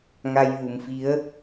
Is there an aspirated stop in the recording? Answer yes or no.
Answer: no